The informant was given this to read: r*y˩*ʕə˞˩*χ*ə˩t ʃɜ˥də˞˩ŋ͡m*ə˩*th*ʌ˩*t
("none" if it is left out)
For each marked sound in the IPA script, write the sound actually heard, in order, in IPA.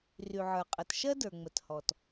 y˩, qʼ, ə˩, ɔ˩

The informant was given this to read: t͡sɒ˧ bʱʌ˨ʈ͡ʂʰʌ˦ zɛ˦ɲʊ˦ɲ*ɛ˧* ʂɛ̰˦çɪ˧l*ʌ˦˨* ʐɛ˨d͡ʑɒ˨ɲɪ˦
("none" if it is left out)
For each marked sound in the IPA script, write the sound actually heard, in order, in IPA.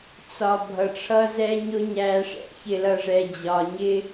æ˧, ʌ˧

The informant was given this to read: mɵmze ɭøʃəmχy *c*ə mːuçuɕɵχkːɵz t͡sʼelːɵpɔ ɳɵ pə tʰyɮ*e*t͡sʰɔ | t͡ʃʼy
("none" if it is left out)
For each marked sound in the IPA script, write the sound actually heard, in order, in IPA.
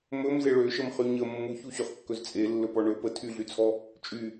ɲ, y

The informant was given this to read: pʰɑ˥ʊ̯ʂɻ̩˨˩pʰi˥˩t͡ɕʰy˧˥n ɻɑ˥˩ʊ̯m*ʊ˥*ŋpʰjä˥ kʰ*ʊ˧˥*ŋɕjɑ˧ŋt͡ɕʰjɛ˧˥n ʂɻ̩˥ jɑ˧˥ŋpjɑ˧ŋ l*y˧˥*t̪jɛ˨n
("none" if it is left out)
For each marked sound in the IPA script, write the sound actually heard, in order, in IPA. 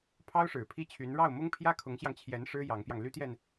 ʊ˥, ʊ˧˥, y˥

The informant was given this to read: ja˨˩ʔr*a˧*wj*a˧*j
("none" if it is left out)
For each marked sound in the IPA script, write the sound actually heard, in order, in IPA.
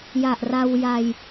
a˧, a˧

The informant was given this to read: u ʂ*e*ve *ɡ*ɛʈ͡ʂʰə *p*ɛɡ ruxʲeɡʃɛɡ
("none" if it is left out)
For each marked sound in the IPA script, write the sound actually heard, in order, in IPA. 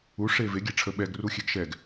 e, ɡʲ, ɓ

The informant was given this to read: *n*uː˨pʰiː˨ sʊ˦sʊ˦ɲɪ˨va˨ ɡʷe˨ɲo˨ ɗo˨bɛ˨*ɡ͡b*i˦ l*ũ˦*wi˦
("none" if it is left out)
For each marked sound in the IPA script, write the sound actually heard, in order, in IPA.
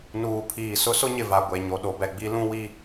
n, ɡ͡b, ũ˦

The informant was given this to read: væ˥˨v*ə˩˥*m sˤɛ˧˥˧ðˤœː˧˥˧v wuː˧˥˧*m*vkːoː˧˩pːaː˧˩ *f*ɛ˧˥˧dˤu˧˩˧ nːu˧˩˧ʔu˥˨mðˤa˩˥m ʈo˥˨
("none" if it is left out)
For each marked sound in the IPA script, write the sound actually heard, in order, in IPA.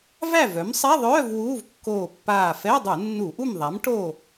œ˩˥, none, f

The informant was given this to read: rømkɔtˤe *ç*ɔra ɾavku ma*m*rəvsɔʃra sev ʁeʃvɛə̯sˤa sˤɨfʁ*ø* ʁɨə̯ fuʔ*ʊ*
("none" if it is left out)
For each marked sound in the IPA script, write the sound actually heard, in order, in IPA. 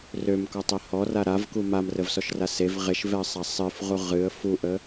h, m, u, ə

